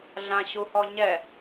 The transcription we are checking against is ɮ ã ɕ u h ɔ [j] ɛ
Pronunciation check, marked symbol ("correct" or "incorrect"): incorrect